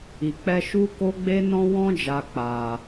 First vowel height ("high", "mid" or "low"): high